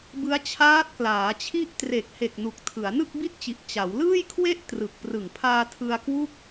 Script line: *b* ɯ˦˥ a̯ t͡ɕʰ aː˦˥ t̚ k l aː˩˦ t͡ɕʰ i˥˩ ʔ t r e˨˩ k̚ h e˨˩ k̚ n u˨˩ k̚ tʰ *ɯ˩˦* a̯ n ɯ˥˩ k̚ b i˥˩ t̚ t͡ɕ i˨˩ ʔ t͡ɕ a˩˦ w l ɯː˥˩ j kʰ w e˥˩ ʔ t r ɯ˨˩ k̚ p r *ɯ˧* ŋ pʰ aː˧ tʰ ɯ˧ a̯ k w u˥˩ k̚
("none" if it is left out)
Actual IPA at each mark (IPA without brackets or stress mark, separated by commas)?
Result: b, ɯ˩˦, ɯ˨˩